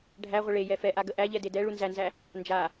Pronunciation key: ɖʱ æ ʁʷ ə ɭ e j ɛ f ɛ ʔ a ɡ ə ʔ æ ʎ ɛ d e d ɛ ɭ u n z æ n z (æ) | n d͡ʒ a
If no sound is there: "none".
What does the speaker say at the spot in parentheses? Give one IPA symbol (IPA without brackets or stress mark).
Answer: æ